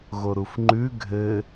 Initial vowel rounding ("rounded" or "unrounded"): rounded